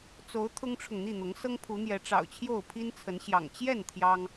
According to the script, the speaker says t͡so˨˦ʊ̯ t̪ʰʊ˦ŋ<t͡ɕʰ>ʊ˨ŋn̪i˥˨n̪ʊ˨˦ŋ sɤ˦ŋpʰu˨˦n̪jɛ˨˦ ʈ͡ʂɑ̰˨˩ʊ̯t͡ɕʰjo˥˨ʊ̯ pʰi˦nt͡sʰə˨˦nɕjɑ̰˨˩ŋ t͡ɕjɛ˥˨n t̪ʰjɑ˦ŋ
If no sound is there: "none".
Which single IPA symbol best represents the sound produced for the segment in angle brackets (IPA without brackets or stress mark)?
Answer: ʈ͡ʂʰ